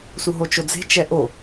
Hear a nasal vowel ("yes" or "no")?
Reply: no